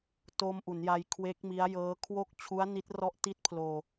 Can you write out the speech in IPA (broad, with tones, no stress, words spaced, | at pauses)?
to˧mʔu˩˦nja˧j kʰwe˦˥k̚mi˦˥a̯jɤː˦˥kʰwo˥˩k̚ t͡ɕʰu˦˥a̯ni˦˥t̚rɔ˦˥ʔ ti˦˥t̚pʰloː˧